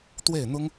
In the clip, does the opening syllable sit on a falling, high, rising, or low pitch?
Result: falling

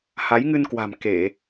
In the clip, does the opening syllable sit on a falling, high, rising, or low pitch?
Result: rising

